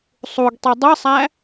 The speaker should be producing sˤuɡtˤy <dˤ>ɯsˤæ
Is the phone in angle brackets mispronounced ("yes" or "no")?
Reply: no